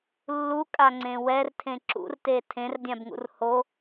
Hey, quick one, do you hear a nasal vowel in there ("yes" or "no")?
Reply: yes